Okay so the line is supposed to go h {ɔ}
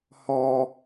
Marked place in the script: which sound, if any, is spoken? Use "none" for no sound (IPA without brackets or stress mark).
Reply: ɔ